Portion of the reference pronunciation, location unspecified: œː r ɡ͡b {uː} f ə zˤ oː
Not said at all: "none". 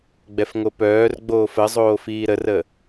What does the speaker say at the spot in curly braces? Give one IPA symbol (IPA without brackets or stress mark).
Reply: oː